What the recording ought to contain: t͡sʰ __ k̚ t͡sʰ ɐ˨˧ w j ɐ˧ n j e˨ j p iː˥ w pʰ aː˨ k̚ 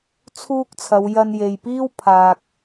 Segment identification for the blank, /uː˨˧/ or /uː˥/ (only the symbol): uː˥